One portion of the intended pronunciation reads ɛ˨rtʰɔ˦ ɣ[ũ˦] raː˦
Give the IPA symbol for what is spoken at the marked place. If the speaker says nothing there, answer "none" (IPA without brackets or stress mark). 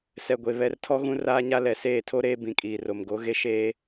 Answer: ũ˦